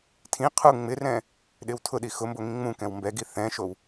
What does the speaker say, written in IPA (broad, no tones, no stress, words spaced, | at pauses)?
tʰĩ qʰu ŋ͡mɪrɛ̃ | ɗɪwtʰʊɗi xʊmbo ŋĩŋ͡mũkɛ̃w mbɛ ɡiθɛ̃ʃow